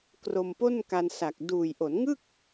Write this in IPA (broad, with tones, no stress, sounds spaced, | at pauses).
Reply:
k r o˧ m p o˥˩ n k a˧ n s a˨˩ k̚ d uː˨˩ j ʔ o˩˦ n ŋ ɯ˥˩ k̚